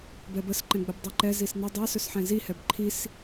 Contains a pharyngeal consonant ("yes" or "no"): yes